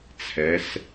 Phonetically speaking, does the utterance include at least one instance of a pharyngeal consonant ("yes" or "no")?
no